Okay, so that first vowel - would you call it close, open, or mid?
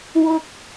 close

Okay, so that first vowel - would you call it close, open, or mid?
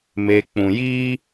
mid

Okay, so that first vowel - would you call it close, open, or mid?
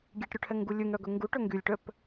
mid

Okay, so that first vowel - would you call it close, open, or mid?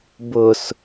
close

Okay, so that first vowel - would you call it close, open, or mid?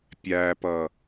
open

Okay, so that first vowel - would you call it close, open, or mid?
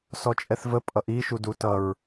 mid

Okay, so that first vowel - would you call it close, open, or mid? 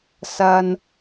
open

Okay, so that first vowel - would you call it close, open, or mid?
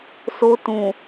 mid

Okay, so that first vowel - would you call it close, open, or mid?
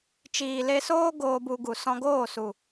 close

